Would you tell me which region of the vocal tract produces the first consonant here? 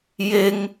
palate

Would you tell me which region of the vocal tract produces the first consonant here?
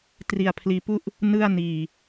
tongue tip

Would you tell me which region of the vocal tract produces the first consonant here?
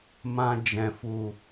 lips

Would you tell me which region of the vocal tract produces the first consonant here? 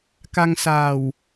velum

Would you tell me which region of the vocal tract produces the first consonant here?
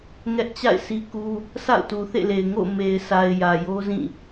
velum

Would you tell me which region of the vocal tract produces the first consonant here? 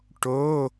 retroflex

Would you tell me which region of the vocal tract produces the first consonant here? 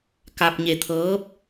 velum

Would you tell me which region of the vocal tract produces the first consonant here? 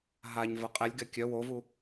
throat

